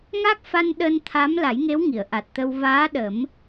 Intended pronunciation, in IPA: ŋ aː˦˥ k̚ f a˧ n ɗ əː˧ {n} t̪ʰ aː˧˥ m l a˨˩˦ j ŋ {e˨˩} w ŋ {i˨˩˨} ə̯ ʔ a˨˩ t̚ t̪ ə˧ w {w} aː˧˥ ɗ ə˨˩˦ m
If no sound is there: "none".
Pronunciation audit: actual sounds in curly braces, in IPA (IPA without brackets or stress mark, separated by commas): n, e˧˥, i˨˩˨, v